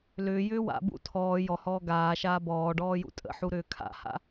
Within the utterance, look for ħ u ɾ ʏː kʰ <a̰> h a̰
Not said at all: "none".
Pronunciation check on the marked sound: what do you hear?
a̰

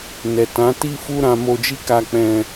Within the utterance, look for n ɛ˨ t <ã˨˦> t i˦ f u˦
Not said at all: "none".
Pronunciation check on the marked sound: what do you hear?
ã˨˦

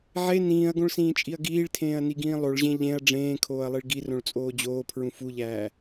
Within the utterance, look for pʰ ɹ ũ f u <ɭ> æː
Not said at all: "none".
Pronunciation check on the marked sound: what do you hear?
ʎ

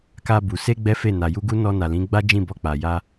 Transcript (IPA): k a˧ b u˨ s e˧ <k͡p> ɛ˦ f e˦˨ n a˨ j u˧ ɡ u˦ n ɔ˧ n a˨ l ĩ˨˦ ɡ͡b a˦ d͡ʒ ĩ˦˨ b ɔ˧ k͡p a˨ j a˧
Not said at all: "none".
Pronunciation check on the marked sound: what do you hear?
ɡ͡b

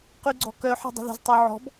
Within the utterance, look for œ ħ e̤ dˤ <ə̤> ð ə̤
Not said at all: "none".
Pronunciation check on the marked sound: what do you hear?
ə̤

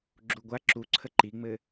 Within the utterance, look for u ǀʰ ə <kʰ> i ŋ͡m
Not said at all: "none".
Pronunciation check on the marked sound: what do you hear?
ǃ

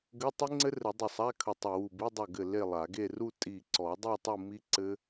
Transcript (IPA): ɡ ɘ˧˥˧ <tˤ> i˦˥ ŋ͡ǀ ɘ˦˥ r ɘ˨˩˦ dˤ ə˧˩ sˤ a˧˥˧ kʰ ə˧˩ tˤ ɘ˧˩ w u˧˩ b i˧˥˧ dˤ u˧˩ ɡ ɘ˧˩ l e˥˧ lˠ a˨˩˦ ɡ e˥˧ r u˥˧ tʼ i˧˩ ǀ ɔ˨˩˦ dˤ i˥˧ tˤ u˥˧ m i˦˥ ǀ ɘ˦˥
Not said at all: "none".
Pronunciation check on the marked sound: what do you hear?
tˤ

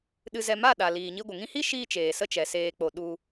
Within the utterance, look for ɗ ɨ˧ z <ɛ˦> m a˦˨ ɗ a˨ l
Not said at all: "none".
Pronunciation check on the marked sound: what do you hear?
ɛ˧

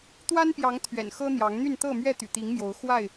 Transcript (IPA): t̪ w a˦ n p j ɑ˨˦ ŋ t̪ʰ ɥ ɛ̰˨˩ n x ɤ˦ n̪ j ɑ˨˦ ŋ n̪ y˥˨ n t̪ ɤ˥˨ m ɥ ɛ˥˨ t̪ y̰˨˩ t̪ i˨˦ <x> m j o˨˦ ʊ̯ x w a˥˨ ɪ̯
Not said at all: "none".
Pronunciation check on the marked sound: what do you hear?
ŋ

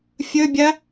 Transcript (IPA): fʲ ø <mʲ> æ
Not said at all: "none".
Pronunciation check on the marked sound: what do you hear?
bʲ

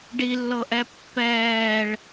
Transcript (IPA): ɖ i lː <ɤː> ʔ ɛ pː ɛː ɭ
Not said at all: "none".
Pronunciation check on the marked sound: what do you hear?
ɤ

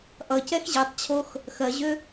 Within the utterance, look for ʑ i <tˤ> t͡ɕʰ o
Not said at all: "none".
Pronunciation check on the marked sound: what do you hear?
tˤ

